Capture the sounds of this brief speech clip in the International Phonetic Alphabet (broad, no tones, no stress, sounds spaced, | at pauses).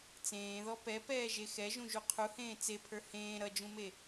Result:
t͡s ẽː ð ɔ p ɛ p ɛː ʒ e x ɛ ʒ ũ ʒ u qʰ u h ẽː t͡s e pʰ ə˞ h ẽː ɾ ʌ d͡ʒ ũ m e